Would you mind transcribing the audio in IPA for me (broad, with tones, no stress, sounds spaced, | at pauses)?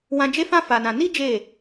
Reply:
w ã˧ d͡ʒ e˦ f ã˦ f a˧ n ã˧ n i˦ d͡ʒ e˦˨